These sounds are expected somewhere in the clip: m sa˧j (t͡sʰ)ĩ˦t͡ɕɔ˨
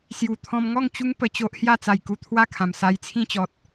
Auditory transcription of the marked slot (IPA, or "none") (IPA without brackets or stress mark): t͡sʰ